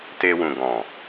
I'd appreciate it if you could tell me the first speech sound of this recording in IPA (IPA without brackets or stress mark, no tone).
t